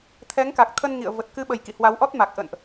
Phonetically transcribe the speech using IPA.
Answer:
t̪ʰɛ˨˦ŋka˨˩k̚t̪ʰə˧n ŋḭ˧˨ə̯və˨˩t̚ kɨ˧ɓə˨˩j kḭ˧˨hwa˨˦w ʔɔ˦˥t̚ma˨˩k̚ ʔə̰˧˨nʔ

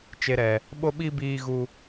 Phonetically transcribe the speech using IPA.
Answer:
t͡ʃe˨ɾɛ˨ | ɓo˧ɓi˧ biː˧ɣu˧

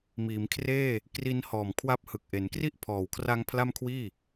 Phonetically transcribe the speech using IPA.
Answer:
miː˩˦mkʰreː˥˩ | kri˧nhɔː˨˩mkʰwa˦˥p̚ hɯ˨˩k̚ʔe˩˦n kri˥˩ʔpʰɔː˨˩wkʰra˦˥ŋ pʰla˥˩mkʰwiː˥˩

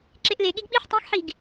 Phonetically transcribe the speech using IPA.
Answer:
ǁeʔleɠiɡ ɓiħ tˤẽxħiɡ

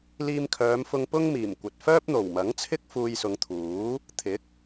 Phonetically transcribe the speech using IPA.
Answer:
liː˧mkʰœː˨˧mfʊ˧ŋ pʊ˥ŋmiː˨˩mkʷɐ˨t̚ fœː˥p̚n̪o˨˩wmɐ˨˥ŋt͡sʰɪ˥k̚ fuː˧jsʊ˨˧ŋ t̪ʰuː˨˥ | t̪ʰɪ˨˥k̚

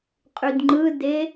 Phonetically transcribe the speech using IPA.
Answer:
qʼydŋ͡ǃɯde

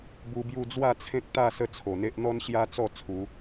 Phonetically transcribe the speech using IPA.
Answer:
bu˧bju˥˧ d͡zwa˥˧t͡sʰẽ˦k̚t̪a˥˧ sə˥˧t͡sʰo˨˩n̪e˦ʔ n̪ɔ˦nɕja˦t͡sɔ˥˧ t͡sʰu˨˦

